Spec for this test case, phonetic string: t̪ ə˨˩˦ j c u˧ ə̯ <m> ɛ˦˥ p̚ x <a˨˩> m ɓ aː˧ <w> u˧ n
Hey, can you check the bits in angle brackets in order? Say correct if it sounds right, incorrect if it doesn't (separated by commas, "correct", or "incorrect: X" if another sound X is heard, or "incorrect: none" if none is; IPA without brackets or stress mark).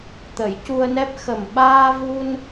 incorrect: n, incorrect: ə˨˩, incorrect: v